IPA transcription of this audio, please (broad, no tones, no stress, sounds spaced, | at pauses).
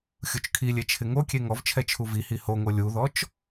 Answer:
xʲ u t͡ʃ kʰ i lʲ e t͡ʃʰ ɪ ŋ o kʲ e ŋ ɔ v t͡ʃʰ ɛ t͡ʃʰ u v i h i h o ŋ o lʲ u ð ɔ t͡ʃ